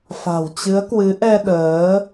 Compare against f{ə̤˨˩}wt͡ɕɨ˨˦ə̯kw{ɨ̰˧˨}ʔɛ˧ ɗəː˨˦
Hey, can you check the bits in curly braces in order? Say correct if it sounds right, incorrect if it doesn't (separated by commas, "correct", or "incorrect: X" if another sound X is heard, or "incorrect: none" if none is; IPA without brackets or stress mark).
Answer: incorrect: a̤˨˩, incorrect: ɨ˨˦